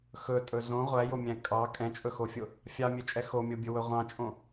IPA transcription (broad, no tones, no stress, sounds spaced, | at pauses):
x ɵ tʼ ɵ z õ ʁʷ æ j o mʲ æ̃ kʼ ɑ kʼ ɛ̃ t͡ʃʼ ɵ x o fʲ o | fʲ ɑ mʲ ø t͡ʃʼ ɛ x o mʲ o bʲ ɵ w ɵ ʁʷ ɑ̃ t͡ʃʼ õ